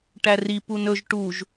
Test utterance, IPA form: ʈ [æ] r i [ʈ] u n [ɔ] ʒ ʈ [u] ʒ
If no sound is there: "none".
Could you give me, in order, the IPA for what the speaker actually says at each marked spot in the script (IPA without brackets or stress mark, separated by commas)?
æ, p, ɵ, u